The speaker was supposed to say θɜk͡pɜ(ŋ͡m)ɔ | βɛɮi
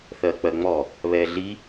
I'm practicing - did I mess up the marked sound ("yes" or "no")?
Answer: no